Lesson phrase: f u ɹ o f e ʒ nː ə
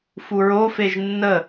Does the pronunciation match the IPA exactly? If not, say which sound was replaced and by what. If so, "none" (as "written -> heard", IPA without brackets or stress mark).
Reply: none